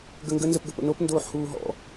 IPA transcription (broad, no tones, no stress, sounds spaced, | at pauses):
ɡ ə ŋ ɡ ə n z ə p ɡ ə p ə̰ n o p n d oː ħ h uː ɦ ɔ̰